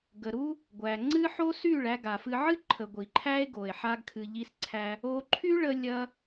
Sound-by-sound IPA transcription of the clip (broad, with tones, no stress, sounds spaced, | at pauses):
ɡ ə˨ ɾ u˦ | ɡʷ æ˨ ŋ͡ǀ ɨ˦ ħ o˦ s y˦˨ ɭ æ˧ ɡ a˨ f ɨ˧ ʕ ɨ˦ ǃʰ ə˨ ɡʷ i˨ ǃʰ æ˦ e̯ ɡ o˨ e̯ ħ a˧ ɡ kʰ ɨ˨ ʎ i˧ s ǀʰ æ˧ | o˧ ǃʰ y˦ ɭ ə˧ lʲ ɐ˦